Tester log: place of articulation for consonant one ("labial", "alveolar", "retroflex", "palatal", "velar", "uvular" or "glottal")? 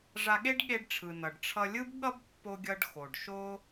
retroflex